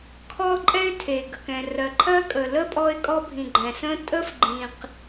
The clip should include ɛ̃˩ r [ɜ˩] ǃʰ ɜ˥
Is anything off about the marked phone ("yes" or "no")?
no